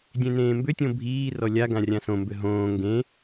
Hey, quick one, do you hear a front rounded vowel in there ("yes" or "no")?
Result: yes